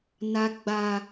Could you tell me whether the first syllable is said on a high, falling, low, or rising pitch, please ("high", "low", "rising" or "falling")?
high